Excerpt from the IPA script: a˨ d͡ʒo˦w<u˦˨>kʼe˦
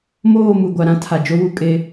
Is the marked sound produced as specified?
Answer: no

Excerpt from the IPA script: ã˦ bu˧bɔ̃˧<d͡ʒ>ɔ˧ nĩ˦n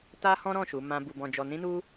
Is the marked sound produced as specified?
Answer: yes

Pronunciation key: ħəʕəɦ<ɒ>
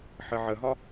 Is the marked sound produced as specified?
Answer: yes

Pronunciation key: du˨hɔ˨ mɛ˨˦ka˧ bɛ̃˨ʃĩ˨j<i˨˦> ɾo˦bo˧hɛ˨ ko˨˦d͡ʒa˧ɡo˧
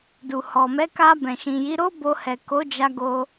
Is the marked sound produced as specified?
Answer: yes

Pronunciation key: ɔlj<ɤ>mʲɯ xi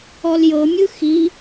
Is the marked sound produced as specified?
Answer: yes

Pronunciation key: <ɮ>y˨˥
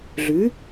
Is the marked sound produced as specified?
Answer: yes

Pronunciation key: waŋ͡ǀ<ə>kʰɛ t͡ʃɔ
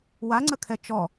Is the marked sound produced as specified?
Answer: yes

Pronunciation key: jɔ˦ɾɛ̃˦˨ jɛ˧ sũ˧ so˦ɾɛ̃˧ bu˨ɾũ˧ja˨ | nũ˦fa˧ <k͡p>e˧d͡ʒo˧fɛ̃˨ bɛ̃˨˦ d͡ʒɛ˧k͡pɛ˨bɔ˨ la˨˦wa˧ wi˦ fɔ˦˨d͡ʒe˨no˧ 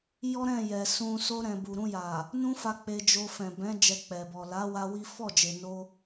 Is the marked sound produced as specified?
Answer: yes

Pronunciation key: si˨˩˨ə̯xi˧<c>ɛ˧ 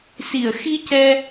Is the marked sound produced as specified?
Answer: yes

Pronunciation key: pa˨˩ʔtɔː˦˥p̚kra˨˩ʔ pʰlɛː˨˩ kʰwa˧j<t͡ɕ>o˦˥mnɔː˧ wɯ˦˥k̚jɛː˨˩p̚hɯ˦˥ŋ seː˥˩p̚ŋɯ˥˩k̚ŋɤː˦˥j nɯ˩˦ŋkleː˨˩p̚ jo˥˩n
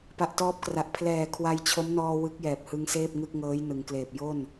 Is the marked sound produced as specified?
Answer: no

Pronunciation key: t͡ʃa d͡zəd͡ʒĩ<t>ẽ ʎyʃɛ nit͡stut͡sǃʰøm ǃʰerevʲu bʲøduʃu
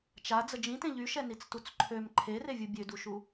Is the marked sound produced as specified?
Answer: yes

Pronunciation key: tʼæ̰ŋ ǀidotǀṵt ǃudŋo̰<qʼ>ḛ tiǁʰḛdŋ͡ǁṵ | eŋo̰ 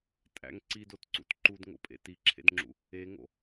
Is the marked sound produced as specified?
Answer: no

